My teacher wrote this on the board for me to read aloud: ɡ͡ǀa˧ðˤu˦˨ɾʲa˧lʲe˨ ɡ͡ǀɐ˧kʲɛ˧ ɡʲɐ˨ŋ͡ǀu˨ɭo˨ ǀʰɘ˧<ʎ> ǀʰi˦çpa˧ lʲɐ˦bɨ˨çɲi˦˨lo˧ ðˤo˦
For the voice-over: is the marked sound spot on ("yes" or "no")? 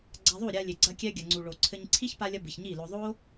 no